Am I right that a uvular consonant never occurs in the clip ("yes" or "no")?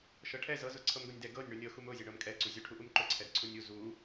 yes